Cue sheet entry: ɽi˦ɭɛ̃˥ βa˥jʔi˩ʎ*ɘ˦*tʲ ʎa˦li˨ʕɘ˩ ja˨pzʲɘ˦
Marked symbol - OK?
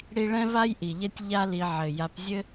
no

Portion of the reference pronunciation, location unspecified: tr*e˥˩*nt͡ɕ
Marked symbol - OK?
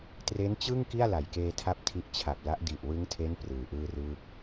no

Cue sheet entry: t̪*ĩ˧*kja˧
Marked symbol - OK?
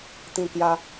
yes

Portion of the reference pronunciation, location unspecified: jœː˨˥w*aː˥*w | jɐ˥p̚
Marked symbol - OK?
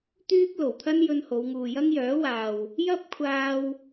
no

